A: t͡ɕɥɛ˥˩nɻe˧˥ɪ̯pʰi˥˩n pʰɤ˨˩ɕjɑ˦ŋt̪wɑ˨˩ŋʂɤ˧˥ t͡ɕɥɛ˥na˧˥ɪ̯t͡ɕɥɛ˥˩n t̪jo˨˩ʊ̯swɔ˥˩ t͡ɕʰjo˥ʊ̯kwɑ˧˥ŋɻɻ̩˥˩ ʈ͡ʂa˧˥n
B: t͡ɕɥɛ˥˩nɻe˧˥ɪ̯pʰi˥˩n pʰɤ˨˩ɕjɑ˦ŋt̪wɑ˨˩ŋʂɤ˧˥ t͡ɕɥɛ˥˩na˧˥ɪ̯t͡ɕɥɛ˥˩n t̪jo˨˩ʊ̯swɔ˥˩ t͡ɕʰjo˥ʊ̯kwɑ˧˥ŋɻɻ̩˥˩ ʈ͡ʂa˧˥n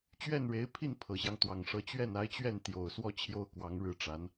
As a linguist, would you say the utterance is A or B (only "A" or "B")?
B